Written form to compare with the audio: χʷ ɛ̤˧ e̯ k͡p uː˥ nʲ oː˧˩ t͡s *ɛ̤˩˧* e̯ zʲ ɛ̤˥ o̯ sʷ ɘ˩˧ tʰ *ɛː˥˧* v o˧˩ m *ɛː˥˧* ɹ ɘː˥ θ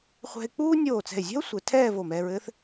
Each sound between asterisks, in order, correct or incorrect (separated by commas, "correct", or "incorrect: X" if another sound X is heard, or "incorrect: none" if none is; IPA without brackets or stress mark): incorrect: ɛ̤˧˩, correct, incorrect: ɛː˧